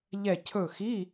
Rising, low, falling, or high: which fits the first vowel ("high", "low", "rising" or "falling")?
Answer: falling